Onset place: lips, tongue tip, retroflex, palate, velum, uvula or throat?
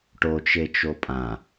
retroflex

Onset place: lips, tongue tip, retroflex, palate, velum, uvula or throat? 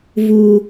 lips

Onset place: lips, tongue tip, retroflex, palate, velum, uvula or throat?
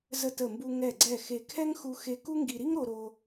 tongue tip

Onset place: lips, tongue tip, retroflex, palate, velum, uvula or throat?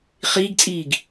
uvula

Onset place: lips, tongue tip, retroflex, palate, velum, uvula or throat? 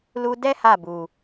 tongue tip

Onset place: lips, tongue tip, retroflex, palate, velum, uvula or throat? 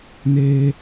tongue tip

